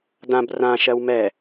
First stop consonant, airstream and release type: plain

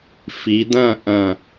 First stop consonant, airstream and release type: plain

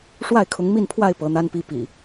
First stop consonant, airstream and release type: aspirated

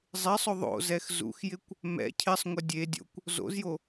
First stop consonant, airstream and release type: plain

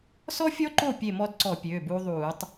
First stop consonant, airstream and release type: click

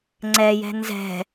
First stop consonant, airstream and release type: click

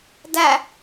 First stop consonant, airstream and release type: plain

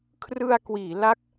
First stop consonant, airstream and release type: aspirated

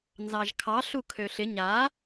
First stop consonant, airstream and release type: aspirated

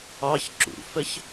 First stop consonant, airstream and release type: click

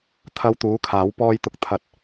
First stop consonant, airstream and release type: aspirated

